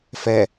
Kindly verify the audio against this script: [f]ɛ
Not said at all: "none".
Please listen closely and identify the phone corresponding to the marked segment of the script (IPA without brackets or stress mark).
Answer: f